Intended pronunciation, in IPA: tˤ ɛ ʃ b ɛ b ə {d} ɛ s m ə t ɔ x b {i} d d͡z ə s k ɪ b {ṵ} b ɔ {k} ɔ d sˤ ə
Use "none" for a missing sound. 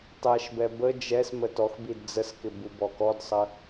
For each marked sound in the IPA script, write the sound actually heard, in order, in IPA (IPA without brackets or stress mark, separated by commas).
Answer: d͡ʒ, i, u, k